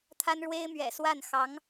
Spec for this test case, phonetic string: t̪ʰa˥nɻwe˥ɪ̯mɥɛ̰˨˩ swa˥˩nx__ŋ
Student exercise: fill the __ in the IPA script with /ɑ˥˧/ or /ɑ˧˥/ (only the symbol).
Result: ɑ˧˥